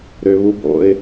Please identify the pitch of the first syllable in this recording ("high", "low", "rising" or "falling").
low